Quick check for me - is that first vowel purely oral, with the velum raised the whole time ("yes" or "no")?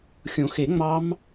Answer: no